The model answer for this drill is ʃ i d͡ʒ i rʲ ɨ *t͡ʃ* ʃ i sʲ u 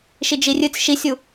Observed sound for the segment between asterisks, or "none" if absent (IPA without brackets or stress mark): t͡s